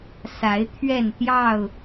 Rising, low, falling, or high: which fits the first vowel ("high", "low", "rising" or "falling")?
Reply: rising